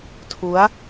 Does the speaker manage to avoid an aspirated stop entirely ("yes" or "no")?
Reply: no